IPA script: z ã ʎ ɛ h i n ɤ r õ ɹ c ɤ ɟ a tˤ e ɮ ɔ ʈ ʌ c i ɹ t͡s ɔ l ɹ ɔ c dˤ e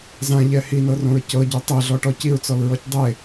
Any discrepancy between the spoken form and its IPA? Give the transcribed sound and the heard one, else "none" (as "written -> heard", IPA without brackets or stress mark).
ʌ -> ɔ